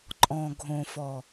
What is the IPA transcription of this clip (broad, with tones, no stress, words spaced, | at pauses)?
ǃʼɔ̃˨ɡʱõ˨fɔ˨